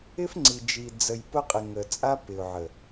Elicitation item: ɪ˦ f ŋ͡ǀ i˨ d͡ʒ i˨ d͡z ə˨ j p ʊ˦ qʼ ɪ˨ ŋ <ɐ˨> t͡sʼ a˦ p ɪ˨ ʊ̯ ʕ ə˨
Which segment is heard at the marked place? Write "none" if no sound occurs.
ə˨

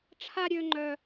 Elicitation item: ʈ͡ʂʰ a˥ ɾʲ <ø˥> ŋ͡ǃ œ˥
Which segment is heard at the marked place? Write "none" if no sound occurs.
ø˥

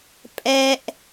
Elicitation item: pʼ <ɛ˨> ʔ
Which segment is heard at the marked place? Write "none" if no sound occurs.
ɛ˦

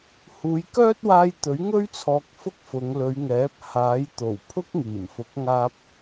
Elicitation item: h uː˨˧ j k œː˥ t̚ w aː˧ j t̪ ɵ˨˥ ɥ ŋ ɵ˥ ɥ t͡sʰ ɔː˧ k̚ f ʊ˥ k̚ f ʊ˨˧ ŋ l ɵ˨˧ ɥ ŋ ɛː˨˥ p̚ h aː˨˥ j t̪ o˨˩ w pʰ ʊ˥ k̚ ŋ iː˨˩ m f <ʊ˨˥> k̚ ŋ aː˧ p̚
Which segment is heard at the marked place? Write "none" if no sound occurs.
ʊ˨˥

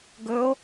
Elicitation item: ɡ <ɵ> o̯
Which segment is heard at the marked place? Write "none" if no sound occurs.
ɵ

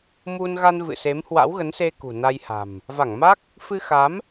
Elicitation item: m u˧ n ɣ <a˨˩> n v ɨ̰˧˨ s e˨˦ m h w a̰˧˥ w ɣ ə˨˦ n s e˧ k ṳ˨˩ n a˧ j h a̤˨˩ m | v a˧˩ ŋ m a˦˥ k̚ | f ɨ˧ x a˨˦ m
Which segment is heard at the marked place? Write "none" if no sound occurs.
a˧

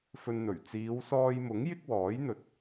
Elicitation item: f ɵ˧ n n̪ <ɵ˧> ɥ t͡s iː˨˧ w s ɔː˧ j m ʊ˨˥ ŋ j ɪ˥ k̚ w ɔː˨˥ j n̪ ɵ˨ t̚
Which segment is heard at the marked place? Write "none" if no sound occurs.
ɵ˨˩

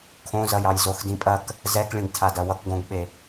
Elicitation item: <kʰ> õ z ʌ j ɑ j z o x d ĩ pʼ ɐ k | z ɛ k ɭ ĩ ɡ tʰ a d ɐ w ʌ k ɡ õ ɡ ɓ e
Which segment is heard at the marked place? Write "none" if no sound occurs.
kʰ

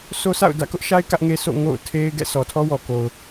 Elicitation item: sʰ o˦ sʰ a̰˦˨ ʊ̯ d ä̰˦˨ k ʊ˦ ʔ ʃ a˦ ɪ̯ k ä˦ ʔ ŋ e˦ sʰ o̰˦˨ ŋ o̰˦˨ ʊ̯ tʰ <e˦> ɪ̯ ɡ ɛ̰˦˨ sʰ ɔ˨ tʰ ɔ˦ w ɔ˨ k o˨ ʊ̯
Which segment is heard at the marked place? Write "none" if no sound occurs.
e˦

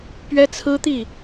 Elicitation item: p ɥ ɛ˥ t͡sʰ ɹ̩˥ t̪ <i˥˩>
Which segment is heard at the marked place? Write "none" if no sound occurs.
i˥˩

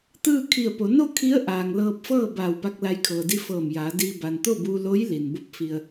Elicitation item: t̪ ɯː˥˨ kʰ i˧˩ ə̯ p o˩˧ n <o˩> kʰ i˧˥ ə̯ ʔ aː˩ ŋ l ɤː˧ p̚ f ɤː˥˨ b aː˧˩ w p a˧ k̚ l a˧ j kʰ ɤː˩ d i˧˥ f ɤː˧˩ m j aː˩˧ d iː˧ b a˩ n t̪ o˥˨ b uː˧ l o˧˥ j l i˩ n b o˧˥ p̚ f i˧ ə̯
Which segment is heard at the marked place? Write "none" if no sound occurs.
o˥˨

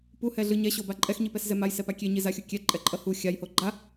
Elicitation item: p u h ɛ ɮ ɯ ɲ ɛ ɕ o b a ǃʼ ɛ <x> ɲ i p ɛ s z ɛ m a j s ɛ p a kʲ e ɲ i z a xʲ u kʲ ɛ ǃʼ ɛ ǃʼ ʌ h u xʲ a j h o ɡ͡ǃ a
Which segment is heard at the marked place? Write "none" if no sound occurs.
x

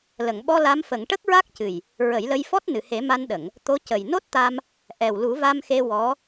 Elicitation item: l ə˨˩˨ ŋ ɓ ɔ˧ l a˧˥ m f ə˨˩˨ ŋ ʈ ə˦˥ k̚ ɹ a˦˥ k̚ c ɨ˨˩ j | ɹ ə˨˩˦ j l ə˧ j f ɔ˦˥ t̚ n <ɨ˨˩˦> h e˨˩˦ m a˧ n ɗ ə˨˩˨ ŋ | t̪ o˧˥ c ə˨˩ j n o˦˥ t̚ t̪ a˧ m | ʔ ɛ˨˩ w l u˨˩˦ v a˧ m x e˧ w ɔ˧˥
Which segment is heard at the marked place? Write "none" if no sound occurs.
ɨ˨˩˨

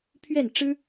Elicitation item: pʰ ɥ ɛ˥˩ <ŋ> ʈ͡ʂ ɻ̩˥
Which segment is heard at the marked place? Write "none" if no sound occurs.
n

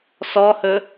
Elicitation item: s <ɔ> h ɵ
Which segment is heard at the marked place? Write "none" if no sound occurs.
ɔ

